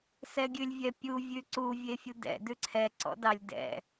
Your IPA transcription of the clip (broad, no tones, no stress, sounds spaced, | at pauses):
s ɛ ɡʲ ʉ lʲ vʲ ɛ pʲ u vʲ ʉ ǀ u vʲ e fʲ u d ɛ̰ d ʉ ǀʰ ɛ ǀ ɔ̰ d ɑ lʲ d ɛ̰